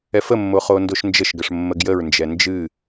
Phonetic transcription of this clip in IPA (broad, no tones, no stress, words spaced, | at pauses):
ɛfəmːo χondoʃnd͡ʒəʃɡəʂ mːəɡjəɹnd͡ʒɛ nd͡ʒɨ